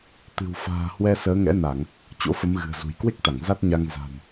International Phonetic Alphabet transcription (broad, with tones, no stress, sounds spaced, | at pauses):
t̪ ɨ̤˨˩ w f a̤ː˨˩ h w ɛ˧ s əː˨˦ ŋ ɛ̰˧˥ n a˧˩˨ ŋ | t͡ɕ o̰˧˥ f ə˨˦ m ɣ ɨ̤˨˩ ə̯ z ṳ˨˩ j k w e˦˥ k̚ t̪ a˧˩ ŋ z a˦˥ t̚ ɲ a˧ ŋ z a̤˨˩ n